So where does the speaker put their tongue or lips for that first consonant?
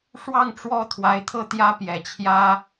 retroflex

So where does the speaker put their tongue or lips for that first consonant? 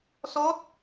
tongue tip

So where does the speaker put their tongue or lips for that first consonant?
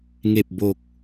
velum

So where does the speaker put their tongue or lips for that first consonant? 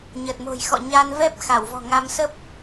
palate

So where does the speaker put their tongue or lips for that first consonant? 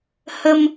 throat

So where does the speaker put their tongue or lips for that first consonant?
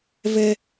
lips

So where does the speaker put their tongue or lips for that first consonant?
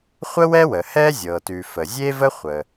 uvula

